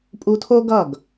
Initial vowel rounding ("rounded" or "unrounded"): rounded